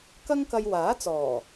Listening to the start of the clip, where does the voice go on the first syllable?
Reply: high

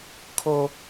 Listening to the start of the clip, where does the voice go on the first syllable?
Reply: high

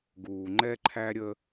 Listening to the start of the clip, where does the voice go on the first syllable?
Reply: low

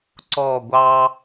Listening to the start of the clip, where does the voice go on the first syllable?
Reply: falling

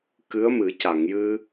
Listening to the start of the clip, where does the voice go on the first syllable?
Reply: rising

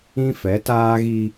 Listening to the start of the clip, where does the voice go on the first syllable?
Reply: high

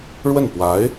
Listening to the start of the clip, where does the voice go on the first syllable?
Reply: falling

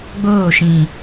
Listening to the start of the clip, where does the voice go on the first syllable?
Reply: falling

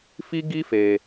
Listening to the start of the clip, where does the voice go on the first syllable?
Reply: high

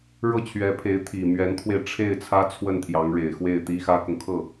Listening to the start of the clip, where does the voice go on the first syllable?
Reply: falling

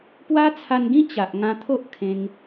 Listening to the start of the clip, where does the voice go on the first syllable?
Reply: high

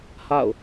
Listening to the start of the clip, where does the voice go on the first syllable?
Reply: falling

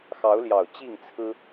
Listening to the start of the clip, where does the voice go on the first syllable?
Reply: rising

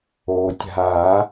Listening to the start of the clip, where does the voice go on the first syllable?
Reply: low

